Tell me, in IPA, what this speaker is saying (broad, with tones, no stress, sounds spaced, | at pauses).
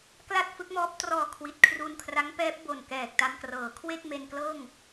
k l a˥˩ t̚ f ɯ˦˥ k̚ m ɔː˦˥ p̚ t r ɔː˧ kʰ w i˨˩ t̚ kʰ r u˧ n kʰ r a˦˥ ŋ p ɛː˦˥ p̚ b o˨˩ n k ɛː˨˩ k̚ t a˧ m k r ɤː˩˦ kʰ w e˥˩ k̚ m e˧ n k l ɤː˥˩ ŋ